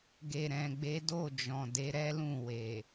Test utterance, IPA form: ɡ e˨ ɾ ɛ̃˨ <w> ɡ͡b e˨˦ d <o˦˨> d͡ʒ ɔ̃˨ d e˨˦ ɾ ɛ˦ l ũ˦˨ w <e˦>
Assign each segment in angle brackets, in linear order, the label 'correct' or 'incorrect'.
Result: incorrect: none, correct, incorrect: e˨

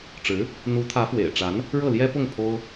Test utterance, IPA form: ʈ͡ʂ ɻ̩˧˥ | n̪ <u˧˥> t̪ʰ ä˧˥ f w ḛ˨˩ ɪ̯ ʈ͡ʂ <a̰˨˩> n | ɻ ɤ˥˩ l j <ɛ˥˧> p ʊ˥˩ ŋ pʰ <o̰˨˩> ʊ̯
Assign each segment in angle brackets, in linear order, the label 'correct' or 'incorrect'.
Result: correct, incorrect: a˧˥, incorrect: ɛ˥, incorrect: o˥

